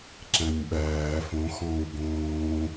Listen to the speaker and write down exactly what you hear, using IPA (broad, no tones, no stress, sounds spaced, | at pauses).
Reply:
ǁ æ̃ nʲ ɓ æː f õ x ɔ̃ː u̯ ɡ õː